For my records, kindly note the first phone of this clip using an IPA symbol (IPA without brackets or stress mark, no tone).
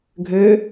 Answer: ɡʱ